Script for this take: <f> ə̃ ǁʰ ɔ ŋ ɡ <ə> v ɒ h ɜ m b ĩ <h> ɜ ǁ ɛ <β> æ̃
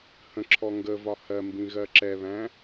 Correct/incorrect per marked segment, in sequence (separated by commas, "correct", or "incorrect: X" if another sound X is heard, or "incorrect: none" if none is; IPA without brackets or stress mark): incorrect: h, correct, incorrect: ɣ, correct